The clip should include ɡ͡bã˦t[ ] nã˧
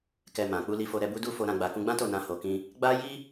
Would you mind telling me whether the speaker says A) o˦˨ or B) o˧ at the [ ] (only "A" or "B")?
A